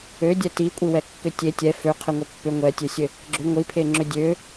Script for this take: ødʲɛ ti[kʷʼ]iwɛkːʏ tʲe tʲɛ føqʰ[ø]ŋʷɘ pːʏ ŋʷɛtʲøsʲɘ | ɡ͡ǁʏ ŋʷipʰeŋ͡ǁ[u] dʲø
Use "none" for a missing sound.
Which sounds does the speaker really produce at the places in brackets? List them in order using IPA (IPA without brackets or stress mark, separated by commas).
kʷʼ, ɘ, ʏ